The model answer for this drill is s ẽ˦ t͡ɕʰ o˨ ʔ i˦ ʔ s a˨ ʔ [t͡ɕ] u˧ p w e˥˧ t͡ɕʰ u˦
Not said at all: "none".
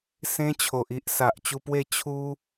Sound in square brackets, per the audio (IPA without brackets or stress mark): t͡ɕ